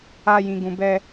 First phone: a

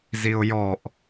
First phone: z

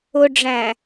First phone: ʊ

